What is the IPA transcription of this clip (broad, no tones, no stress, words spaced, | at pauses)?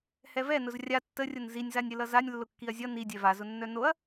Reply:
hɛvɛnʊz rʲa tːərʲʊn zinʲzanʲɾʲəlʌ zanʲ lːʊkːiɐ̯zʲʌ nidʲɛ vazʊnːœ noɐ̯